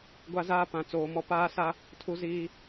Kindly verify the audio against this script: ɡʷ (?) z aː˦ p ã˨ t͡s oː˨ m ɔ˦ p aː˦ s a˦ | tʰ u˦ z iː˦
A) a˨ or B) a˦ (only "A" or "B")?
B